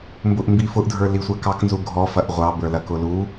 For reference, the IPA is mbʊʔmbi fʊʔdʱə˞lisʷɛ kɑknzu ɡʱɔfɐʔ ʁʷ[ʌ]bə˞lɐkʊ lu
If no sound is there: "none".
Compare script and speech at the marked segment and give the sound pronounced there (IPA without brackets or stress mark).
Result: ɑ